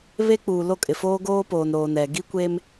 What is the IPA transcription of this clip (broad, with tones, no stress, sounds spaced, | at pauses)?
β e˦ k͡p uː˨ l o˦˨ kʼ ɪ˨ f oː˦ ɡ oː˦ p oː˨ n ɾ oː˨ n ɛ˨ ɡ i˦ kʷ e˦ m